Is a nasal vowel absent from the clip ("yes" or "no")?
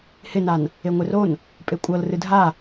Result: yes